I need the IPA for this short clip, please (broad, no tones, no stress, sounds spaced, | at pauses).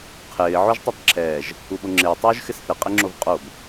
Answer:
qʰ ɪː ʕ o ʒ tˤ ɛ tˤ ǁʰ ɛː ʒ | u ɓ o ŋ͡ǁ ɪː tˤ uː ʒ x ɪ s θ ɪ qʼ ɪ ŋ͡ǁ o v qʼ o b